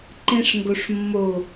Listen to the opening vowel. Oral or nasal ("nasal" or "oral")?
nasal